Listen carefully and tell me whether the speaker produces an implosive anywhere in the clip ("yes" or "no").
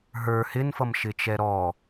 no